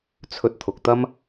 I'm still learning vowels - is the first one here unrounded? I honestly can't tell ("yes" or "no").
no